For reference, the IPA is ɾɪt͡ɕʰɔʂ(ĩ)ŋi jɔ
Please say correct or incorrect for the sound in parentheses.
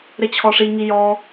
incorrect